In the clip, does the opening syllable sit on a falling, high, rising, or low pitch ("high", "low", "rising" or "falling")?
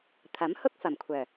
rising